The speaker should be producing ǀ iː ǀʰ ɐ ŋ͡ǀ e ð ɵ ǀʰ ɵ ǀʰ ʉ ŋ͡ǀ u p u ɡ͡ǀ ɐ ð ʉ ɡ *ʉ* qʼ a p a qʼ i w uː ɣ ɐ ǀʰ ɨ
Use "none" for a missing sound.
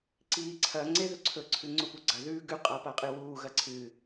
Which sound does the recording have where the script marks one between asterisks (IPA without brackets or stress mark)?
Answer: ʉ